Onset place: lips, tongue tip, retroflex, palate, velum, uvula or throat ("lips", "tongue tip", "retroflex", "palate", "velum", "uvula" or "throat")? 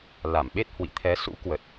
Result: tongue tip